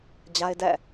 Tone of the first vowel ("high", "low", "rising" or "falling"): high